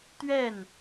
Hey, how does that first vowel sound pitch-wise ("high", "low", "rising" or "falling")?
falling